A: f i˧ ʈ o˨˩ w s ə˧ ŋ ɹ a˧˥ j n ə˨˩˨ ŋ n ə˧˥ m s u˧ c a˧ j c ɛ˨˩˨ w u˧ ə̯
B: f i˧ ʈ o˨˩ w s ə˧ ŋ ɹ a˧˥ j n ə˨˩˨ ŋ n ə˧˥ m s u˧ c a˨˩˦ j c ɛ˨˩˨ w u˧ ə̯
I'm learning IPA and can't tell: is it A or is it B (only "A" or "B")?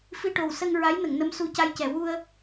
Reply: A